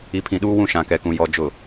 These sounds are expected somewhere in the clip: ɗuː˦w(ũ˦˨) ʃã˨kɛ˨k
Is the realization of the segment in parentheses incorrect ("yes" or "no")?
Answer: no